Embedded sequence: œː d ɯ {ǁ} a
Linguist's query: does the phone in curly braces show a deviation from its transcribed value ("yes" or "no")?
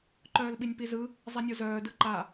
yes